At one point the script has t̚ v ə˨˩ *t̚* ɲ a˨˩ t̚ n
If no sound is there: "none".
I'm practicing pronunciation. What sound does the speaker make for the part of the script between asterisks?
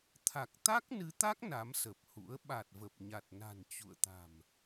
p̚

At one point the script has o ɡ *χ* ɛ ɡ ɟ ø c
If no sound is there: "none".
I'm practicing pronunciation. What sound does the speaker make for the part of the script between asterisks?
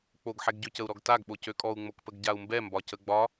ħ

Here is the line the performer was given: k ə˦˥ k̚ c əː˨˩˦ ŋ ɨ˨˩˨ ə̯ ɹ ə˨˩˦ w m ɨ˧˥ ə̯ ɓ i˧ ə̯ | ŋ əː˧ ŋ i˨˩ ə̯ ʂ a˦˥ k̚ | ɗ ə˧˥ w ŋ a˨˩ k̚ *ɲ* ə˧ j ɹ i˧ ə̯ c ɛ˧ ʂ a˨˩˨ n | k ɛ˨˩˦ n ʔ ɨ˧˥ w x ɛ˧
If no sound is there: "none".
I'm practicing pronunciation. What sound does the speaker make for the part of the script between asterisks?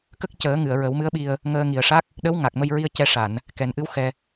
m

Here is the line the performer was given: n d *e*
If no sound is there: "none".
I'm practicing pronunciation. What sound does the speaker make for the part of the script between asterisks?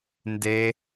e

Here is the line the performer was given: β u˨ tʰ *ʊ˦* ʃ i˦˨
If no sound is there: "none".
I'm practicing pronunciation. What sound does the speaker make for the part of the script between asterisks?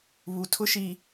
ʊ˦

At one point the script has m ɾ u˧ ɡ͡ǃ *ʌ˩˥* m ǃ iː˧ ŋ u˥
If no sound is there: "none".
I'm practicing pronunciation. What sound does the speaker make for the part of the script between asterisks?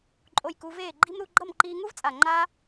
ʌ˥˩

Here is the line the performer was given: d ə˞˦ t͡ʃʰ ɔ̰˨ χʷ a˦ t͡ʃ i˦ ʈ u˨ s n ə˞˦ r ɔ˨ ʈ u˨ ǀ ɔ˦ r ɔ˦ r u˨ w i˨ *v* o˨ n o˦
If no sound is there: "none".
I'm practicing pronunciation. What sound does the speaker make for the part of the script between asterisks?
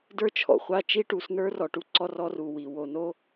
w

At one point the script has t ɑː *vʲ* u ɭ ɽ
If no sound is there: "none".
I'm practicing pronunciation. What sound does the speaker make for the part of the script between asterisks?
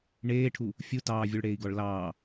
vʲ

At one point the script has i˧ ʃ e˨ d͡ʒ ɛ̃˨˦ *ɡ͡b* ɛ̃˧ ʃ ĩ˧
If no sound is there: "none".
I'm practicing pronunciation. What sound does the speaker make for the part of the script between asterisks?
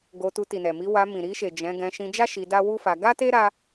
ɡ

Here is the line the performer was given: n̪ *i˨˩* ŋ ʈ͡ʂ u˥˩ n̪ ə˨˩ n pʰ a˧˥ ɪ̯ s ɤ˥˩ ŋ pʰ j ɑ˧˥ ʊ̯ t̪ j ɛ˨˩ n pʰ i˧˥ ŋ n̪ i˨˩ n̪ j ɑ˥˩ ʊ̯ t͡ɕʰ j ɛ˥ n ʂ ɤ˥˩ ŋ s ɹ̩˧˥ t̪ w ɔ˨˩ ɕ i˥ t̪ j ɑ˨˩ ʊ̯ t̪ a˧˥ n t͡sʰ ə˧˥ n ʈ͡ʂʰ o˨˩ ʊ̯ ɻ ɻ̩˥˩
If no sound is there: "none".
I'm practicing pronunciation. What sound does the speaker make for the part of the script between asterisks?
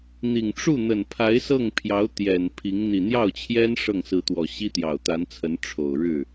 i˨˩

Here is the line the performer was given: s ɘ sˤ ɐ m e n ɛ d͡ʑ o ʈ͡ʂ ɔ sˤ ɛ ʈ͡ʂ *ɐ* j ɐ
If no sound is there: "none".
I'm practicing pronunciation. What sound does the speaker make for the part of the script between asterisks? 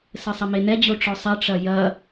ɐ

